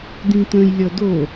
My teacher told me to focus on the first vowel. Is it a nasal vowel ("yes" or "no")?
yes